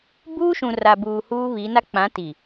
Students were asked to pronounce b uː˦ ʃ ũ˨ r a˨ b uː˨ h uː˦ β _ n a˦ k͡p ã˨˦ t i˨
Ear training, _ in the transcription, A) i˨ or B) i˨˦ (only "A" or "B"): B